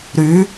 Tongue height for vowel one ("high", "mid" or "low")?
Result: high